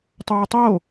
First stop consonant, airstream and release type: plain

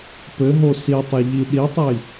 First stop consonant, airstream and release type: plain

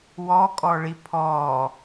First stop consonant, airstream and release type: ejective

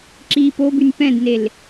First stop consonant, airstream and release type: click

